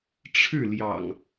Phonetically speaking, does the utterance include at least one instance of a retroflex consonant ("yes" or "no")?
yes